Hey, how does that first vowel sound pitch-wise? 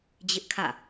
high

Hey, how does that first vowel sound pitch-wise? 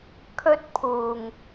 high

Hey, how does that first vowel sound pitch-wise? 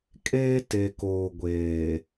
high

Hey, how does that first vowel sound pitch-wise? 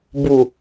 low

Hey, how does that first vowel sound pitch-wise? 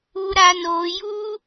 high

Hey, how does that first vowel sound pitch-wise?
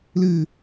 low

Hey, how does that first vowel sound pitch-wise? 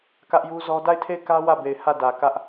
high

